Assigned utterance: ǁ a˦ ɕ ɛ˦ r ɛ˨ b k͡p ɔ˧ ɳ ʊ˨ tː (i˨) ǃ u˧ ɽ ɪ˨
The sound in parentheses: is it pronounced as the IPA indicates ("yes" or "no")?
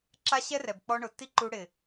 no